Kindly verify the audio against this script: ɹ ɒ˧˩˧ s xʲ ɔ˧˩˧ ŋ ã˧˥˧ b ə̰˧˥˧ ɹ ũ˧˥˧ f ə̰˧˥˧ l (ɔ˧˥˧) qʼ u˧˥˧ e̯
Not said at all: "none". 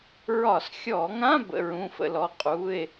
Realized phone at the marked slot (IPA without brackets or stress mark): ɔ˧˥˧